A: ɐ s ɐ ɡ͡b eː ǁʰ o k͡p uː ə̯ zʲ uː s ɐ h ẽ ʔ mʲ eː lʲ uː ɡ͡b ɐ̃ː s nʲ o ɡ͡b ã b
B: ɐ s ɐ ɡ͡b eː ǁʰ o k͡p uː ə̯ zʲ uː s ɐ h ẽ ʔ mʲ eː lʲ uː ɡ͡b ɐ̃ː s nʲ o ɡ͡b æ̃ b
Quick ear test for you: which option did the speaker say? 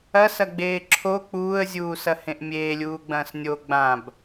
A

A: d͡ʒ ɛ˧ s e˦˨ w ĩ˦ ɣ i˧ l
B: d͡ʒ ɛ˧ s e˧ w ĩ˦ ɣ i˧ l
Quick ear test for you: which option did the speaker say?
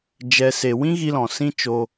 B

